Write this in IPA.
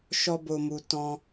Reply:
ʃɔ˧bo˨mu˨ tɔ̃˧

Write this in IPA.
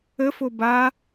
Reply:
əfo ba

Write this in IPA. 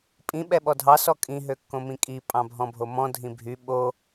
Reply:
pʼĩ ɓɛɓɔdʱɑ sɔkʼĩ ɦøkːõmĩkʼi pʼɑ̃bʱɔ̃bʱomɔ̃ dʱĩbʱy ɓo

